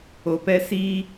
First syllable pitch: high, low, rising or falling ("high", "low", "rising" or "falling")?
low